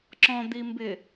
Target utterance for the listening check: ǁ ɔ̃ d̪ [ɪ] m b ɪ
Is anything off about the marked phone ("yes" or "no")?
yes